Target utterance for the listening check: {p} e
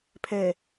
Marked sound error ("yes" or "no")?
yes